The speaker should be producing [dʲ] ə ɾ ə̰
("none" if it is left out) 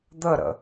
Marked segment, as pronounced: d̪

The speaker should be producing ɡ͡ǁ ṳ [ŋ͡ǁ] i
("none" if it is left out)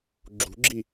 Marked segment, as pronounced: ɡ͡ǁ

